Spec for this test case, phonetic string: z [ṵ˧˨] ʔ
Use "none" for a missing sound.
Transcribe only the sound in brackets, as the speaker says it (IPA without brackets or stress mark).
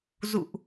ṵ˧˨